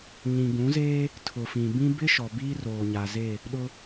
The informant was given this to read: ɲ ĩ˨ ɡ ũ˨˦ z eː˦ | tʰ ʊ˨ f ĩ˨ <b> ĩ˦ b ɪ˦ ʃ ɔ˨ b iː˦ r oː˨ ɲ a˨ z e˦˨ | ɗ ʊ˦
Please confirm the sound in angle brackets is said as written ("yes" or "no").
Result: yes